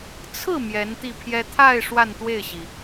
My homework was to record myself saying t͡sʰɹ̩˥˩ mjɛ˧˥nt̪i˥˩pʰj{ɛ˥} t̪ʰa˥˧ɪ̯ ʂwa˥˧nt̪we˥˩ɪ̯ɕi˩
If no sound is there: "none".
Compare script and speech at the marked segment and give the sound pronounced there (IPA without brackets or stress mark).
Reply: ɛ˥